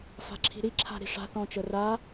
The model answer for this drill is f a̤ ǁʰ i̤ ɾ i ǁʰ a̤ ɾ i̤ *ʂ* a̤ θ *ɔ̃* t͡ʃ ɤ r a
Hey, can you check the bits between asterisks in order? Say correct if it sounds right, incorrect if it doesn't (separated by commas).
correct, correct